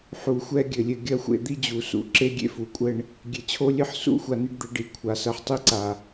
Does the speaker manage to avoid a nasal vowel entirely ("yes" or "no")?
yes